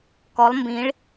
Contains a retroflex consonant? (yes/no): yes